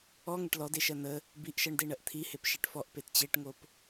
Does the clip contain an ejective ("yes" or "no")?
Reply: no